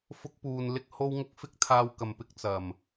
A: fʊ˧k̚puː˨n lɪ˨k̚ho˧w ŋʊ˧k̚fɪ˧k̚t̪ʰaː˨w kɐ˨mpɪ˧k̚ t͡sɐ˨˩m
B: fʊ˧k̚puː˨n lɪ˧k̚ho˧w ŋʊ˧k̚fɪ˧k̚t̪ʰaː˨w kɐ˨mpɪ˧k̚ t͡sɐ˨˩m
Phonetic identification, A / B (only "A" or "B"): B